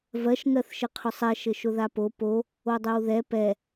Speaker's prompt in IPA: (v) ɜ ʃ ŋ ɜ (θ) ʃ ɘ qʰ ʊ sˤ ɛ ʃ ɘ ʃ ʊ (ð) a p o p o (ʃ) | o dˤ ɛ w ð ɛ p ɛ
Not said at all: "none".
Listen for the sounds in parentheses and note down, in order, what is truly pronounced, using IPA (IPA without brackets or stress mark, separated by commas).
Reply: v, θ, ð, none